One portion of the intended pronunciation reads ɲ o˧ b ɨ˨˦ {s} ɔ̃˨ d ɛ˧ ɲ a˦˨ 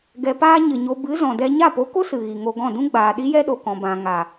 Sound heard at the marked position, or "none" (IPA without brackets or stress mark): z